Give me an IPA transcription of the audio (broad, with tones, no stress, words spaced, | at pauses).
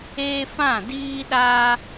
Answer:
eː˦fã˦˨diː˦ɗa˦